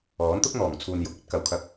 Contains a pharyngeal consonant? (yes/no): no